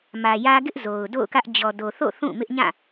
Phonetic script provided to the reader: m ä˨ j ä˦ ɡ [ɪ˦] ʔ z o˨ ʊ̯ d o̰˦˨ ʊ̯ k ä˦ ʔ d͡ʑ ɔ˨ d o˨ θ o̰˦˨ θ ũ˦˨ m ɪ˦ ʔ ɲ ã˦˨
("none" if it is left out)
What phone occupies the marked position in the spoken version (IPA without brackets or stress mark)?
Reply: ɪ˦